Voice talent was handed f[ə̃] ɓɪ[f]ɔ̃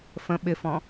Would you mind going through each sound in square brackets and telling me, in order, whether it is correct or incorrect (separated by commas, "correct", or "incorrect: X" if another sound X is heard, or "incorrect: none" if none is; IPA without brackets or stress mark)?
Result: correct, correct